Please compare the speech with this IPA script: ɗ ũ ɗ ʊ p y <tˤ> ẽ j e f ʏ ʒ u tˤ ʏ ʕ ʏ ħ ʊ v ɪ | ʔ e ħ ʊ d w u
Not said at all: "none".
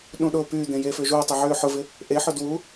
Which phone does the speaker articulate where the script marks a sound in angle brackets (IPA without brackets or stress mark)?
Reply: d̪